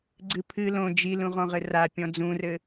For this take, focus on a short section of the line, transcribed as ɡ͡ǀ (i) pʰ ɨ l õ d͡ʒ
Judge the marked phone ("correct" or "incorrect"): incorrect